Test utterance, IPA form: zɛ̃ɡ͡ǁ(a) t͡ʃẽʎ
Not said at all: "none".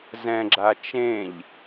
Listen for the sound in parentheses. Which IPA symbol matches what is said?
a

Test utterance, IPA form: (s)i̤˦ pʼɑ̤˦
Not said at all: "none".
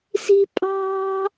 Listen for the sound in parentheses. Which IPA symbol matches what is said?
s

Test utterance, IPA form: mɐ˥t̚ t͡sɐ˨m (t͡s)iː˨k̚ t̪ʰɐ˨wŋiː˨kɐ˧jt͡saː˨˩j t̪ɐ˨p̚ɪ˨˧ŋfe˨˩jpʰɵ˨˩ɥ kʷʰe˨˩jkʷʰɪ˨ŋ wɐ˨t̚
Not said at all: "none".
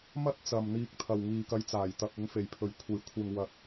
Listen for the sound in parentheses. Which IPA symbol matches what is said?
n̪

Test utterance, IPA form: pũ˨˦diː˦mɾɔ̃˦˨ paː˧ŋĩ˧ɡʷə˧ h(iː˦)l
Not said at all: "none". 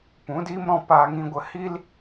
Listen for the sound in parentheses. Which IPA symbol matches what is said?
i˦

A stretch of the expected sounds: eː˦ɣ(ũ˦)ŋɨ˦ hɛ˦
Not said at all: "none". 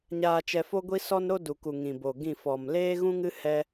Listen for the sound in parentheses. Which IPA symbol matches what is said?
ũ˦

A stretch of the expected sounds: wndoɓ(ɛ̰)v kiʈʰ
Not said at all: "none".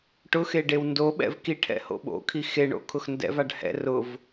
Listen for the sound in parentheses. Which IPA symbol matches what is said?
ɛ̰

